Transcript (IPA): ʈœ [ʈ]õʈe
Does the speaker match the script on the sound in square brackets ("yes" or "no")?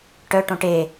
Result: yes